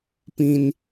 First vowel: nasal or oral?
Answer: nasal